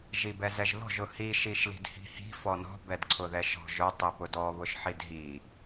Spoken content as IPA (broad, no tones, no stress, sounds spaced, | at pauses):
ʒ i b ɛ z ɛ ʒ ð ɔ̤ ʒ ʊ h i ʃ i ʃ l i̤ d h i̤ h i̤ f ɔ n ɔ̤ b ɛ d ǀʰ ʊ ð ɛ ʃ ɔ̤ ʒ ʊ tˤ i p ʊ d ɔ β ʊ ʃ ħ i d ɦ i